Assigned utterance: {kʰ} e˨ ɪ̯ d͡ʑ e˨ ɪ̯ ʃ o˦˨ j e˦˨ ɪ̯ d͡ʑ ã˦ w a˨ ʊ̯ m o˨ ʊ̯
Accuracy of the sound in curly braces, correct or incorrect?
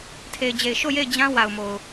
incorrect